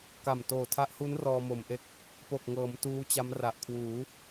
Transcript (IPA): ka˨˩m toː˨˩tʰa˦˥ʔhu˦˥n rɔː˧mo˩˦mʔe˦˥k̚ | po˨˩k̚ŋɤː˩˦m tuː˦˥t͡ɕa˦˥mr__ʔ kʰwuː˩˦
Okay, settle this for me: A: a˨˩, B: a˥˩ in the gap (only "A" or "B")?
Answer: A